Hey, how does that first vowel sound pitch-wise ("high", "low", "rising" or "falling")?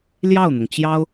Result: falling